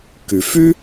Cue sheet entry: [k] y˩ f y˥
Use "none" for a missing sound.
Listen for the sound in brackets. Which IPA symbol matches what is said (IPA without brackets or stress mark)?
k